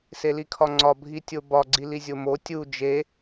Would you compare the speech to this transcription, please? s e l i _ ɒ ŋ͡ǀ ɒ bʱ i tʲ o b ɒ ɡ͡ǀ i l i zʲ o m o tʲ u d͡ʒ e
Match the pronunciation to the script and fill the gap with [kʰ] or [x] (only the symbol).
kʰ